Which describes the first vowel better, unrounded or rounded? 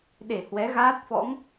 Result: unrounded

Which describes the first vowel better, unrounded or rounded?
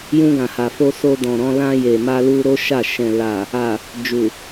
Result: rounded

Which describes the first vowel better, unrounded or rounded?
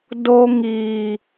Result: rounded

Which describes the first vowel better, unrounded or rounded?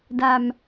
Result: unrounded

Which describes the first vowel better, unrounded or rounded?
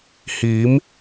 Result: unrounded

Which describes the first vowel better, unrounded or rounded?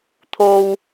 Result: rounded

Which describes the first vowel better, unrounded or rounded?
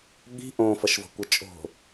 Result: unrounded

